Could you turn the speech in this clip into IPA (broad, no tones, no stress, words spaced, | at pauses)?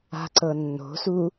a̤ǀɤnːo̤su